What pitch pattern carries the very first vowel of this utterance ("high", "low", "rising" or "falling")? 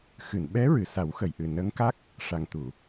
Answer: low